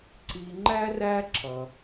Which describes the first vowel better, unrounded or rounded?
unrounded